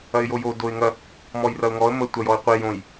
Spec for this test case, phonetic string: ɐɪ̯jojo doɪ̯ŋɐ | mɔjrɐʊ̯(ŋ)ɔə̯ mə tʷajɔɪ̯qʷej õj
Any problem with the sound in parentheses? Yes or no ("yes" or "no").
no